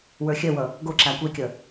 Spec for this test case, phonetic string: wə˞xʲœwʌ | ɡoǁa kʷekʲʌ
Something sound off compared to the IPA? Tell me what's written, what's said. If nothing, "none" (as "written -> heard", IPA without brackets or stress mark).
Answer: none